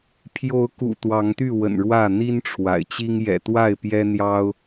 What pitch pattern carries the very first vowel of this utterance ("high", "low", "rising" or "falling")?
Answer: rising